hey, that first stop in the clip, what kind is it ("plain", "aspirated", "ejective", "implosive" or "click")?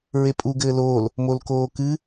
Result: ejective